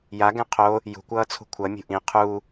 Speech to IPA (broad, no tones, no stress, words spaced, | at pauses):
ja ɡɛ̃qʰo | jṳ kʷʌːt͡sʰṳkʷʰʌ mʲṳʔĩ qʰu